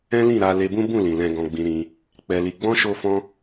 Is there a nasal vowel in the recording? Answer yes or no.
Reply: yes